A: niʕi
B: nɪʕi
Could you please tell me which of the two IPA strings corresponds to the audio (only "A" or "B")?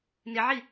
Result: B